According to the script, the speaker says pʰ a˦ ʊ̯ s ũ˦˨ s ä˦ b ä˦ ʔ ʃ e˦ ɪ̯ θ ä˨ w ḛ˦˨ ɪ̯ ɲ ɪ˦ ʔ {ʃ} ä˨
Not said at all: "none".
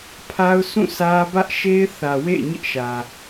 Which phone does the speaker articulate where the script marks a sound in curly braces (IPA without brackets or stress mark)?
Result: ʃ